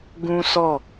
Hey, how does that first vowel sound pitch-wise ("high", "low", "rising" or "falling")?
high